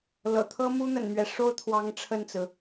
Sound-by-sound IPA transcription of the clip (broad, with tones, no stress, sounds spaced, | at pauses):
l ɤ̰˨˩ t̪ʰ ɤ˥ m u˥ n̪ ə̰˨˩ n m ɥ ɛ˦ ʂ o˥ ʊ̯ t̪ʰ w ɑ˧˥ ŋ ʈ͡ʂʰ ə˥˩ n t͡s ɹ̩˩